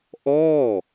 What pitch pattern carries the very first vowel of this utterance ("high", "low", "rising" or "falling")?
falling